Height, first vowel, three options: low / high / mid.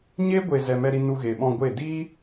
mid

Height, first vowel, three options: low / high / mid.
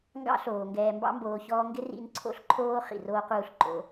low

